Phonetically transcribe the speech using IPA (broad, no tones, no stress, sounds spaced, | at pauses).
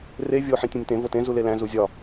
r e vʲ o ħ ĩ tʲ ũ nʲ t ẽ v o t ẽ z u l e l æ̃ z u zʲ ɒ